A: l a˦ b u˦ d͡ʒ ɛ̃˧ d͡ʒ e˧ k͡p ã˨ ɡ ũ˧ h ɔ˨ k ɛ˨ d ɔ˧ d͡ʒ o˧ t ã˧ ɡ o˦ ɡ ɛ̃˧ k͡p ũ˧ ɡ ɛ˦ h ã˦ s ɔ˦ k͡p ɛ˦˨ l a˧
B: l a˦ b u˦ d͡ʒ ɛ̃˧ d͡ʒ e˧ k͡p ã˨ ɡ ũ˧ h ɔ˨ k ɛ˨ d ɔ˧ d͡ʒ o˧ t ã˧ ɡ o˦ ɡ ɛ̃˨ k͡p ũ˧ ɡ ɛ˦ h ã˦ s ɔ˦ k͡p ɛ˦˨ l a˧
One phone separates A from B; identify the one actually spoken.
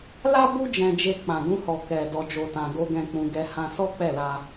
A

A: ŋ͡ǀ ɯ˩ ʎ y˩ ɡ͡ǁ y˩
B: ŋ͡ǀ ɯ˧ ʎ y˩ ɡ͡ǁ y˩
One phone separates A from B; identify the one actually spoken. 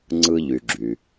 B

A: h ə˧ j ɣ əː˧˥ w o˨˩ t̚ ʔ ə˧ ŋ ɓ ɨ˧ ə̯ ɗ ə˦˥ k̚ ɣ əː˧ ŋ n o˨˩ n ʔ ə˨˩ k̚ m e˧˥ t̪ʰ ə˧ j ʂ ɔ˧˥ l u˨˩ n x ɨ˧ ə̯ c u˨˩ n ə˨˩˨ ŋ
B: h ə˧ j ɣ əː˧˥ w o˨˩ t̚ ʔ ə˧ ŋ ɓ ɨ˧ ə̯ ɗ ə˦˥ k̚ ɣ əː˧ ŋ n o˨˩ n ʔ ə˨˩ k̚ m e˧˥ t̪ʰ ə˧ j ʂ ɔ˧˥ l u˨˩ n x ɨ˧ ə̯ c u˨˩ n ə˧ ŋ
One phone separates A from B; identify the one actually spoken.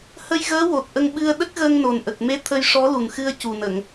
A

